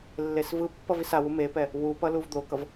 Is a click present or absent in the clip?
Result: absent